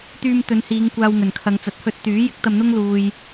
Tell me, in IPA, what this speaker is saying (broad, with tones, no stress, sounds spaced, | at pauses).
t̪ yː˧ m t̪ ɵ˨˧ n h iː˨˧ ŋ kʷ aː˧ w ŋ ɵ˨˩ n kʰ ɐ˨˧ ŋ t͡s ɐ˨˥ t̚ h ɵ˧ t̚ t̪ yː˨˥ j ɪ˨˥ k̚ t̪ ɐ˧ m n̪ ʊ˥ ŋ l uː˧ j